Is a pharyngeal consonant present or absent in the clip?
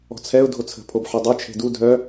present